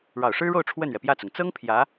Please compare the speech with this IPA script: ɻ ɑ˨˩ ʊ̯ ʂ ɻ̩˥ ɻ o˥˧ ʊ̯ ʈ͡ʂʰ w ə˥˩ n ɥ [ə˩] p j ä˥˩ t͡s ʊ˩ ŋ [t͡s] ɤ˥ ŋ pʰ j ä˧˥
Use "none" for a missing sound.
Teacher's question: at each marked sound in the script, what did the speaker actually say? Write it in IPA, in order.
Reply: ɛ˩, t͡s

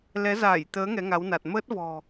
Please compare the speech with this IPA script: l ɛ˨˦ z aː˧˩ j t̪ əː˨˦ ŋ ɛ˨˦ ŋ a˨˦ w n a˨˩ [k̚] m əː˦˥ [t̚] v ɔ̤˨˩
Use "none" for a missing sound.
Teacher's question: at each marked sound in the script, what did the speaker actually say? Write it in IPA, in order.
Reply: t̚, t̚

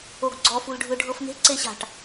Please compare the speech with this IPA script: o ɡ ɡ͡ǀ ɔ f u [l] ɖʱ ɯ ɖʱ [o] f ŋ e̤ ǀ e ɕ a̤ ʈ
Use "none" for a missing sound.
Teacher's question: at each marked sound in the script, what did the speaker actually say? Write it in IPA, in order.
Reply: l, ɤ

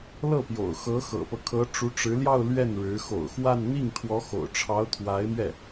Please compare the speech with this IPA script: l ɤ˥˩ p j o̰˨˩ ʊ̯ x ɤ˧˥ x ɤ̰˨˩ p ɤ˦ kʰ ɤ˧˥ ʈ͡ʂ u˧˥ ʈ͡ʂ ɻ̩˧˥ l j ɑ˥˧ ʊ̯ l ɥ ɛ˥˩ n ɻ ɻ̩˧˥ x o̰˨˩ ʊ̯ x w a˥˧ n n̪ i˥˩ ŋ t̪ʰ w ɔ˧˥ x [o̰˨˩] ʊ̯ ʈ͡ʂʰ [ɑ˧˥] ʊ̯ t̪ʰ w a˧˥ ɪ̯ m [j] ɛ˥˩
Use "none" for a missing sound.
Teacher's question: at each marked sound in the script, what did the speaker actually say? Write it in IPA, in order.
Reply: o̰˨˩, ɑ˧˥, ɥ

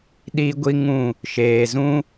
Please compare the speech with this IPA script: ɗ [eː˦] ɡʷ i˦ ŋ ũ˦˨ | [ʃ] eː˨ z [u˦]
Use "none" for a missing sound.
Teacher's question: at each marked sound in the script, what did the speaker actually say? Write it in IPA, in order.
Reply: iː˦, ʃ, ũ˦

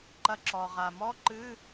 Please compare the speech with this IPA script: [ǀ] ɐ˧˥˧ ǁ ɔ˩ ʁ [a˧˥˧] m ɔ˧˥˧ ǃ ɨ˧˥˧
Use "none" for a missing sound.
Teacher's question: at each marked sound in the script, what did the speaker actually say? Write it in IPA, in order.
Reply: ǃ, a˩

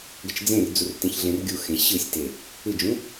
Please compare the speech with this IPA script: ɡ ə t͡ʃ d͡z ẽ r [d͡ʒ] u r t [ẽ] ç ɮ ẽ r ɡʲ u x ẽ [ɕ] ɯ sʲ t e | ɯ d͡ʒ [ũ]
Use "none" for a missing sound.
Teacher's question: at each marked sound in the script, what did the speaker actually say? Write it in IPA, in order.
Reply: d͡z, ẽ, ɕ, ũ

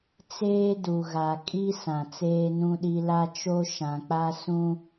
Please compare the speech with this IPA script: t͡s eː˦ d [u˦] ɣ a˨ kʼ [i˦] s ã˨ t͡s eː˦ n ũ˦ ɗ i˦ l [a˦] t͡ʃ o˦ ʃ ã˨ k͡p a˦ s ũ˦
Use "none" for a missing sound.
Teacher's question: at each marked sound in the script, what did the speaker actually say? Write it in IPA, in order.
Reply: u˨, i˦, a˦

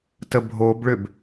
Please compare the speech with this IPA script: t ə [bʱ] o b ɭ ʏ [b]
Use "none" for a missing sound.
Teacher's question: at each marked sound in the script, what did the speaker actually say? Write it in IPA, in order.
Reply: bʱ, b

